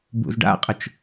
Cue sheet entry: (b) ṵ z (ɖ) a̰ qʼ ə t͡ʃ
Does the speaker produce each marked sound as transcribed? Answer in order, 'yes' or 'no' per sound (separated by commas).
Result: yes, yes